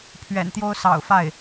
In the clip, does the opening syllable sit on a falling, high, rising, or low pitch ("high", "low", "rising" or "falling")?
low